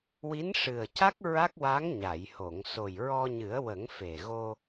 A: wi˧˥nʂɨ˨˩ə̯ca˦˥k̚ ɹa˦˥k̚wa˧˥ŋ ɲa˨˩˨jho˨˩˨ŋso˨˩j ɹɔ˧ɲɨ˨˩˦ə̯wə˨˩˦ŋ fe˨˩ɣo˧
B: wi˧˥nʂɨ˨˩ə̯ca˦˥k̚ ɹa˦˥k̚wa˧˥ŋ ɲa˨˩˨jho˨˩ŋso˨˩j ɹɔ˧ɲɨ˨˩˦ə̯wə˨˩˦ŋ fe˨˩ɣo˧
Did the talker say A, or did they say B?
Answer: A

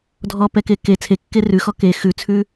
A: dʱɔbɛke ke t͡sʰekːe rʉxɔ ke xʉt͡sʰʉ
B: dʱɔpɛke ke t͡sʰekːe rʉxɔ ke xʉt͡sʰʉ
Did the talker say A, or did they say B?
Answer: B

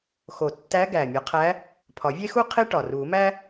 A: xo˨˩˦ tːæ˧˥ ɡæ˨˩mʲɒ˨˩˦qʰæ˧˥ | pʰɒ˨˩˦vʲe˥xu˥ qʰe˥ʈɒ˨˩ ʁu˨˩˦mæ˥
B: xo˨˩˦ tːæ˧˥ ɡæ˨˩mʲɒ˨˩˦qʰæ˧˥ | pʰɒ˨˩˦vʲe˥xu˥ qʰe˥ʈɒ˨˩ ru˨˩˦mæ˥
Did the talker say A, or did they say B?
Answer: B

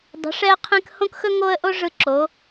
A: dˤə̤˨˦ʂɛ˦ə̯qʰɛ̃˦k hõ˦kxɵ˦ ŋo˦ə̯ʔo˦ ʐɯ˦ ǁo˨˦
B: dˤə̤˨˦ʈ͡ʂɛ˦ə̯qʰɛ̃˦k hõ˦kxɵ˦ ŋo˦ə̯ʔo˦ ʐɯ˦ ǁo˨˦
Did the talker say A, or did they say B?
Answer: A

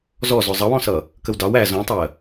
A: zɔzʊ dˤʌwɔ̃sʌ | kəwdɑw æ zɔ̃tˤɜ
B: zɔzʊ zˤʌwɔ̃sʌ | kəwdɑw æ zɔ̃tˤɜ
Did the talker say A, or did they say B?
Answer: B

